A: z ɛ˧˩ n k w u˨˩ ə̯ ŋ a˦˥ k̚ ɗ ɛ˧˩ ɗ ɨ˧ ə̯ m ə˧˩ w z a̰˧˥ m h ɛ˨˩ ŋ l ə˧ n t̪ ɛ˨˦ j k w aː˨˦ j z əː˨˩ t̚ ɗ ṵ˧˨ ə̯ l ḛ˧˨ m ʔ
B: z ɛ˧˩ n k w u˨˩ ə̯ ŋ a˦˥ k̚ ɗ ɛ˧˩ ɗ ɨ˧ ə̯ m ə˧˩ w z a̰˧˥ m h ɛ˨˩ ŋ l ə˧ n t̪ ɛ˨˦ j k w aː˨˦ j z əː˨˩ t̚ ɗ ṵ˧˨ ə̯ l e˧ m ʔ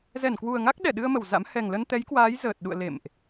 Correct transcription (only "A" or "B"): A